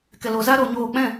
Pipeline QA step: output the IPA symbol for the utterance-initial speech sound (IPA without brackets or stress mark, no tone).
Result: k